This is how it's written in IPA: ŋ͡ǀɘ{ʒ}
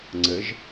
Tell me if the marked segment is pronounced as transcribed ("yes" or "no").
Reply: yes